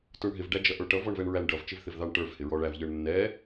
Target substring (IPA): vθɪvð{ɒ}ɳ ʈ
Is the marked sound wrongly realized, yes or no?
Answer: yes